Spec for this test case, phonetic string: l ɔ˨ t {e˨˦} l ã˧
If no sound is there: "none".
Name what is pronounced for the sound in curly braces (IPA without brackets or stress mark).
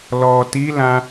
i˨˦